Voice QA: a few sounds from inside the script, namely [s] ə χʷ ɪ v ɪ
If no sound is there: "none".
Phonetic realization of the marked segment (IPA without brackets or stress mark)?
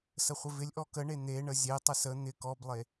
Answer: s